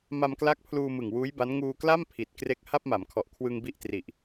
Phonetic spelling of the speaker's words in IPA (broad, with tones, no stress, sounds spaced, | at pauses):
m a˧ m k l a˦˥ k̚ pʰ l uː˧ m ɯ˨˩ ŋ w uː˦˥ j b a˦˥ n ŋ uː˧ k l a˥˩ m pʰ i˨˩ t̚ k r e˦˥ k̚ h a˥˩ p̚ m a˩˦ m kʰ ɔ˨˩ ʔ kʰ w ɯ˧ ŋ b i˦˥ ʔ t r i˨˩ ʔ